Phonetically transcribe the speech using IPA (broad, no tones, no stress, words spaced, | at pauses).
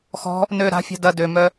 xɔ̤ | nø ɾa̤fʲa̤ dɐ dømœ